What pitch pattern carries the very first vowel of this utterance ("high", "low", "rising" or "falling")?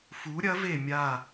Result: rising